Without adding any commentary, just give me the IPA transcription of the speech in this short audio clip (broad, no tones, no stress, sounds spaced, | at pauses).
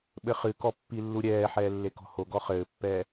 ɓ ɘ χ ɨ k ɔ pː i lː u ɾʲ ɛː ħ ɛː lː e k ɔ̤ h o ɡ ɔ χ ɘː pː ɛː